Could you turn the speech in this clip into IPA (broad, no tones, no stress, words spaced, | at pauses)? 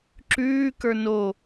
ǁʉːkə˞ no